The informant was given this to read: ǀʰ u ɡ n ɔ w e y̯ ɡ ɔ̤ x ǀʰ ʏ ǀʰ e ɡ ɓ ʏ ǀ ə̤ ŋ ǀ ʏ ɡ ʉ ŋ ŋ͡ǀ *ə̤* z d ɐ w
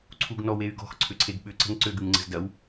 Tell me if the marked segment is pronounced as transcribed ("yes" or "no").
yes